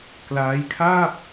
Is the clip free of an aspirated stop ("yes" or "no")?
no